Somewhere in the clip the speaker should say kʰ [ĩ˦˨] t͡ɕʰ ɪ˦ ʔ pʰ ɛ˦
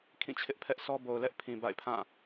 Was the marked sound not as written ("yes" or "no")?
no